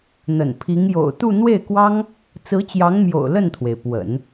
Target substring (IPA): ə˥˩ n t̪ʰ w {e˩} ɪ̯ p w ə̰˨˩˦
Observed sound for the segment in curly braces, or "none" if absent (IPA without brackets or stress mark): e˩